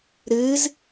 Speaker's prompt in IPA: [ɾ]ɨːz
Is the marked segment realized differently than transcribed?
no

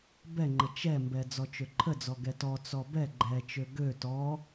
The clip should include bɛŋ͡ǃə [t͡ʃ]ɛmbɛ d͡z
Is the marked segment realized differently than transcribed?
no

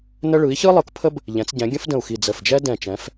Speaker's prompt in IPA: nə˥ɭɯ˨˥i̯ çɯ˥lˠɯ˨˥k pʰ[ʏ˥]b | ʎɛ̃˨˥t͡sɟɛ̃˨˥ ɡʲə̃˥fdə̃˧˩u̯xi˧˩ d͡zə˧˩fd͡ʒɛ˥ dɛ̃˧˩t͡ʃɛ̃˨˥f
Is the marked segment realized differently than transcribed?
yes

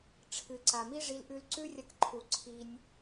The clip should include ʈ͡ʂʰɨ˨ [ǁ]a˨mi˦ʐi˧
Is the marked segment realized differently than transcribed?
yes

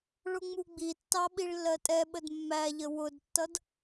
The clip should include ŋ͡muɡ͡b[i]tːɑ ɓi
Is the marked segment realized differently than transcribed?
no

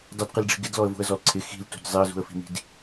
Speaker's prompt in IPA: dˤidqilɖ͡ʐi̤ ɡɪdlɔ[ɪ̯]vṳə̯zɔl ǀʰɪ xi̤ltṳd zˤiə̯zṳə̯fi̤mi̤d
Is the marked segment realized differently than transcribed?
yes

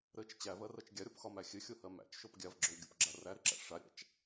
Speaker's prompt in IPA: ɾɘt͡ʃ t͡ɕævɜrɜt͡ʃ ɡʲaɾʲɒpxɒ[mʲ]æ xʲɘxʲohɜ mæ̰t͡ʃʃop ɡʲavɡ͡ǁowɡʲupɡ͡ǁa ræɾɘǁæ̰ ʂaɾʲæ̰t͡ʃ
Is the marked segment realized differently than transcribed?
yes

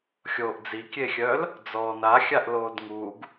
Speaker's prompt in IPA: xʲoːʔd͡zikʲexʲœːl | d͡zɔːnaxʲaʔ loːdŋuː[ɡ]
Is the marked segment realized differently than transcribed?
no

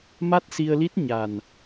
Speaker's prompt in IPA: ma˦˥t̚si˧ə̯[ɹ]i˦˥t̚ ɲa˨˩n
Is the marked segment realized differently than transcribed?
yes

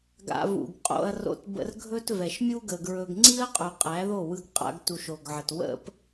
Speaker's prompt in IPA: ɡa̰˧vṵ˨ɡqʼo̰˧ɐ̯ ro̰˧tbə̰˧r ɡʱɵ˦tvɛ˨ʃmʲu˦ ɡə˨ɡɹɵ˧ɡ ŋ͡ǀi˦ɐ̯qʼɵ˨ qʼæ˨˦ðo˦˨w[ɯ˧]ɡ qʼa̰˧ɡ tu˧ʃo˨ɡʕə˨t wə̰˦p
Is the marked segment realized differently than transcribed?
no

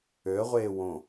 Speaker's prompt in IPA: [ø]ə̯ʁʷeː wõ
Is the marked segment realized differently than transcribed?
no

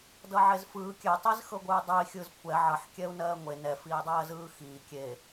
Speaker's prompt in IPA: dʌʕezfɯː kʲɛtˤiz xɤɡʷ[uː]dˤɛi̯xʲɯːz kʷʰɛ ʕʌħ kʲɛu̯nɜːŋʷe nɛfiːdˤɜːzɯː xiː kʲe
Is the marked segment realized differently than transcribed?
yes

